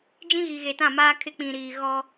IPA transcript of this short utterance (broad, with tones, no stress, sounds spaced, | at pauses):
d͡ʒ ĩ˦ ɣ i˨ ɣ e˨ t ã˦˨ m aː˦ kʰ ɪ˦ k͡p ĩ˨ ɾ iː˨ ɣ ɔ˦